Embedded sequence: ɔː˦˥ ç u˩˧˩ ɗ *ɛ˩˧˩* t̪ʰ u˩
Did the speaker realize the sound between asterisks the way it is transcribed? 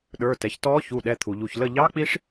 yes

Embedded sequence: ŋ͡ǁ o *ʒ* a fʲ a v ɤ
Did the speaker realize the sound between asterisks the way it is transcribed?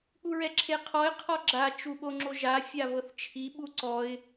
yes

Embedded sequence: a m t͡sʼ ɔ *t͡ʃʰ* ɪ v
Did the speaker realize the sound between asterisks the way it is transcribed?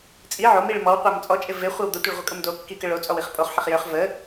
no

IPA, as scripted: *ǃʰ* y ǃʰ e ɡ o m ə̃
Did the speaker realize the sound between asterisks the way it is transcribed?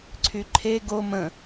no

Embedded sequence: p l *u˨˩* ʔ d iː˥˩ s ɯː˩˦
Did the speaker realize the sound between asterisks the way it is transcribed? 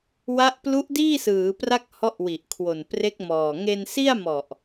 no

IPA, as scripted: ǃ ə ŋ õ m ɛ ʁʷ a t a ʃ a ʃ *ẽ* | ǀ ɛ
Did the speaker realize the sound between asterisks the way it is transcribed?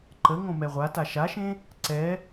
yes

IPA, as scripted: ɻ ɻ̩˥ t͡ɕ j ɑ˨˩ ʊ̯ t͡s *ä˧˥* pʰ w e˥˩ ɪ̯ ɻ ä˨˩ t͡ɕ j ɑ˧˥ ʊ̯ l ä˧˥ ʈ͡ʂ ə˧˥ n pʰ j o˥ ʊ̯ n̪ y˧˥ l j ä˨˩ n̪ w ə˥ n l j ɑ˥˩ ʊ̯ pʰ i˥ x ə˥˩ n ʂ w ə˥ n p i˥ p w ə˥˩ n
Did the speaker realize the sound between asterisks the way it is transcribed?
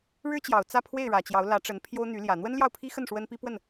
no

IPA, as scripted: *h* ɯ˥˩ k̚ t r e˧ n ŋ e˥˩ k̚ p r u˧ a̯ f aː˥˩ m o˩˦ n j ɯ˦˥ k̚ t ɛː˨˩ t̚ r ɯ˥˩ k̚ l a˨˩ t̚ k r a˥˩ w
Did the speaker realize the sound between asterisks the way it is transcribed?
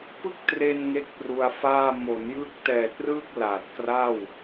no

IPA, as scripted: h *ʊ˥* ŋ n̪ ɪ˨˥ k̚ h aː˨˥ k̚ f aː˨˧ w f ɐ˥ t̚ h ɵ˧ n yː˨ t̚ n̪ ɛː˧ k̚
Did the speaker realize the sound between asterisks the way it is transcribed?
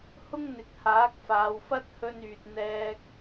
yes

